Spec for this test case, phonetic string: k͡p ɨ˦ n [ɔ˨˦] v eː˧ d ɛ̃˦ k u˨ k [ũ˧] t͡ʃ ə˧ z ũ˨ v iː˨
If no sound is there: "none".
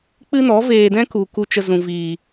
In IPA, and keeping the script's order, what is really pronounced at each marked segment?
ɔ˨˦, u˧

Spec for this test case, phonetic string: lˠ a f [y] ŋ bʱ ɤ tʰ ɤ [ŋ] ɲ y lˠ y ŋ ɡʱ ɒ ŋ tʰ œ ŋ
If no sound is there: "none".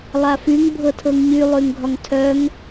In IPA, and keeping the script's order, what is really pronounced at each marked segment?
y, ŋ

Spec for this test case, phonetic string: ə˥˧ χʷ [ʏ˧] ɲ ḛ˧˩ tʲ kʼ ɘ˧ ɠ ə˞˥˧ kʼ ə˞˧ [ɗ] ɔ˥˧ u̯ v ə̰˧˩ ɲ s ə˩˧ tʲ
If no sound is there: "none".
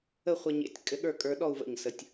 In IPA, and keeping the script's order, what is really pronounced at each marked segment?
ə˧, ɗ

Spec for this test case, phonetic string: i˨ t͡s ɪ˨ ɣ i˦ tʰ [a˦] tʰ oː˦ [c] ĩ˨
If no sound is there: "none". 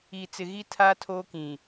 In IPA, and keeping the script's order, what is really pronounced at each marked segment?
a˦, k

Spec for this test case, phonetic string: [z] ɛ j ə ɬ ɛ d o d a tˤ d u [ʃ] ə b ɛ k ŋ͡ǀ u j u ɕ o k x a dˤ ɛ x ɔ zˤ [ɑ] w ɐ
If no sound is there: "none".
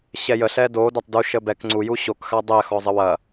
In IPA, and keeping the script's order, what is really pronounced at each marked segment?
ɕ, ʃ, ə

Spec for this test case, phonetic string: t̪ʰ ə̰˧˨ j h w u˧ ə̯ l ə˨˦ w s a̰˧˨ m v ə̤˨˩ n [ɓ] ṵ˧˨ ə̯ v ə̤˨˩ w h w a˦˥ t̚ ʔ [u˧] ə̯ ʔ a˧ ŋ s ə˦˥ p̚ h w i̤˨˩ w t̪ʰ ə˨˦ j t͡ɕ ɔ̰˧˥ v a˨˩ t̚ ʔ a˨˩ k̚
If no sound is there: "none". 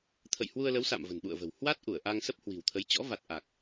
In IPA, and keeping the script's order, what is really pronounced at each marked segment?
ɓ, u˧˩

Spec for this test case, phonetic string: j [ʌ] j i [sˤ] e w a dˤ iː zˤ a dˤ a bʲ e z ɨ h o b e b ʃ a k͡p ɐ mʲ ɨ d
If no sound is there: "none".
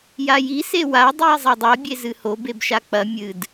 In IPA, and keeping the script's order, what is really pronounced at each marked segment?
a, s

